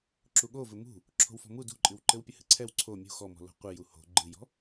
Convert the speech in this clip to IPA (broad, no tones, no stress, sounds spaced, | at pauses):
ǁ u ɠ o v ɘ m ṳ | ǁʰ o̤ w f ɔ̤ m u d ṳ ǃʼ ɨ w ǃ ɘ w pʲ ɘ h ɨ ǀʰ ɛ w ǀʰ o mʲ ṳ x ɔ m ɔ̤ l o̤ qʷ ɨ j u h o̤ ɡ͡ǃ ɨ j ɔ̤